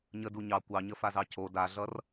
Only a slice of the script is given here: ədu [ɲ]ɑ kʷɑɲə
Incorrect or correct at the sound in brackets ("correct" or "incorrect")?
correct